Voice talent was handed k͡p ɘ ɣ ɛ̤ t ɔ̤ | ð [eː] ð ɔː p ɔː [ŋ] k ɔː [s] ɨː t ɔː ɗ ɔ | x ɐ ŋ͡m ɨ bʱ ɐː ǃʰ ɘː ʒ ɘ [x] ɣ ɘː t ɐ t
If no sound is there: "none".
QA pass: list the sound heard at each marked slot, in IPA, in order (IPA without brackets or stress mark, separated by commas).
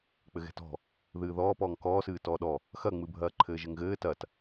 ɨː, ŋ, s, ŋ